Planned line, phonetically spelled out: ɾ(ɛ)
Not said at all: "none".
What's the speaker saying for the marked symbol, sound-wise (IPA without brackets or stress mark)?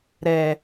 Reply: ɛ